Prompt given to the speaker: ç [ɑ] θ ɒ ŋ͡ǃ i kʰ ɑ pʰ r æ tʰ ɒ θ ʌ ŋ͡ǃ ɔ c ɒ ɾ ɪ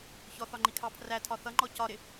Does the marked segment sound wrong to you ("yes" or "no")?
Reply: yes